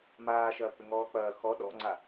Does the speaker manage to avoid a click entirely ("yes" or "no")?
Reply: no